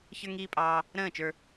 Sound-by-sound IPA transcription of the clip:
ç ə˞˧ ŋ iː˧ pʼ ɑː˧ | ɾ ə̃ː˦˨ t͡ʃ ə˞˧

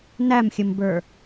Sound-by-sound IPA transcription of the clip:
n æ m xʲ ə m b ə˞

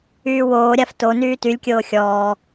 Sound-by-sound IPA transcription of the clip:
yː w oː ɾʲ a f t o n yː t y lʲ kʲ oː xʲ ɔː

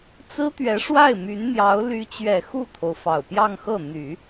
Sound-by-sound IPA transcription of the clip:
t͡s ɹ̩˥ t̪ ɥ ɛ˧˥ ʂ w a˥˩ ɪ̯ m y˧˥ n n̪ j ɑ˧˥ ʊ̯ l y˧˥ t͡ɕ ɥ ɛ˨˩ x u˥˩ t̪ʰ o˩ ʊ̯ f ɑ˨˩ ʊ̯ p j ɑ˥˧ ŋ x ɤ˥˩ n̪ y˨˩˦

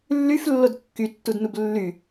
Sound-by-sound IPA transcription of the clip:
lː y f lː o d kː y tː u d n u b lː y

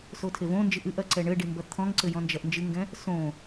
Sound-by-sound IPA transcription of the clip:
s o tʰ e v õ n d͡ʒ ɨ ʔ ɨ ʔ ɐ ǀ ɛ ɳ ɘ ɖ i m b ɐ t̪ʰ ɔ̃ ŋ ǀ ɘ j ɔ̃ n d͡ʒ ɐ ʔ n d͡ʒ ɨ ŋ ɡ ɛ̃ | s õ

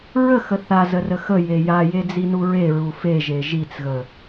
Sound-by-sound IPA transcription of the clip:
ɹ ə x ə θ a z ə r ə x ə j e j a j e d͡z i n u ɹ e ɹ u f e ʒ e ʒ i t͡s ɣ ə

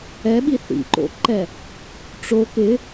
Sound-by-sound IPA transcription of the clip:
ɛ ɓ i θ ḭ ǃ o̰ ǃ ɛ | ʈ͡ʂ o k ɪ

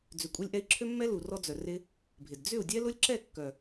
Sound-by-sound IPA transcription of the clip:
d͡z ʏ˨ kʷʼ e˧ lʲ ʔ ɛ˧ i̯ ǁʰ ø˦ mː ɛ˦ l u˨ r ɔ˦ d͡z œ˨ r ɪ˧ | bʱ ɪ˨ d d͡z ʏ˦˨ u̯ dʲ ɛ˦ l ʊ˦ lʲ ǁ ɛ˦˨ kː œ˨

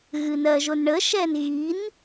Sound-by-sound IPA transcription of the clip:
ɣ ɨ n ɜ ʒ o n ɳ ə ʃ ɛ n ɣ i n

